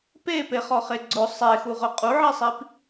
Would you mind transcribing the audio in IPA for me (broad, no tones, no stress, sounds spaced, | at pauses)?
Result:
p e p e χ ɔ χ e ɡ͡ǀ ʊ sˤ e x u ʁ ʊ qʼ u ʕ i sˤ i p